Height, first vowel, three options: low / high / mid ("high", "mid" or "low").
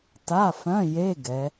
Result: low